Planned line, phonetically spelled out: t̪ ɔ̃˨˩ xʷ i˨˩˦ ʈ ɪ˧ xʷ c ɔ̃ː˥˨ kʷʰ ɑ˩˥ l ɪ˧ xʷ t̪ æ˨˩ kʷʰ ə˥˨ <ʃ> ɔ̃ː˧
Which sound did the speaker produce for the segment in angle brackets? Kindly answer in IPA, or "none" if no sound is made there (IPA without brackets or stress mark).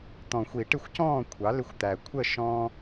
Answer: ʃ